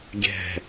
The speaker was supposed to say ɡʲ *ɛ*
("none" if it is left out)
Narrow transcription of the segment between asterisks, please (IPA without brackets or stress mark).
ɛ̤